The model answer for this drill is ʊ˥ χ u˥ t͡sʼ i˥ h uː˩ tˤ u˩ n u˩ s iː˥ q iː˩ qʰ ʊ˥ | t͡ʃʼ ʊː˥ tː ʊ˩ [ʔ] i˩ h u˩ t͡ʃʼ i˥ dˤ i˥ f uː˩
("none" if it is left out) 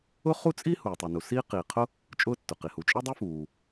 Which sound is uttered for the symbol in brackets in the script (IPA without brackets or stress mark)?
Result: q